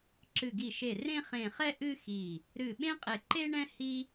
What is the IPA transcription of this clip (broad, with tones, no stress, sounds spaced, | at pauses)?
ǁ ɨ˧˩ ɡ i˧˩ ʃ e˧˩ r ẽ˥ χ ẽ˧˩ χ ɛ˥ ʔ ɨ˥ x i˧˩ | ɾ ɨ˧˩ ɓ ẽ˥ qʼ e˧˩ ǃ e˥ ɳ ɛ̃˥ h i˥